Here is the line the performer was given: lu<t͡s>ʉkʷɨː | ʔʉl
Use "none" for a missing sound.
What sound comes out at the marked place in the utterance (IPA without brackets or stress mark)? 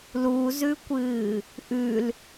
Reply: z